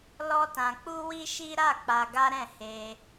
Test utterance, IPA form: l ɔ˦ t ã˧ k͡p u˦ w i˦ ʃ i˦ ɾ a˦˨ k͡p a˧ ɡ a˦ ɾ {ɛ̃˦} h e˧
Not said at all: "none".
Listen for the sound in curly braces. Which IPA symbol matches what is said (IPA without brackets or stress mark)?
ɛ̃˦˨